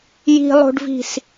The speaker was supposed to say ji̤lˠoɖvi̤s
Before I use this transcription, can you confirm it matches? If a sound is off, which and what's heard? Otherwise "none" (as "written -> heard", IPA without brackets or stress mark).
o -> o̤